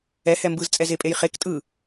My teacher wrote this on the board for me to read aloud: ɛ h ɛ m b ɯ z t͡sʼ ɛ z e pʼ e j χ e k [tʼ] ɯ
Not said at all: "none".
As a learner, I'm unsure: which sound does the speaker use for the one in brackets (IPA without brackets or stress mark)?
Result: tʼ